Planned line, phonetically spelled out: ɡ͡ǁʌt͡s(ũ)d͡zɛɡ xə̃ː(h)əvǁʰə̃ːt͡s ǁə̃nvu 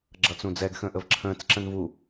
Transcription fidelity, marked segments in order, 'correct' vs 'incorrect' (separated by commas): correct, incorrect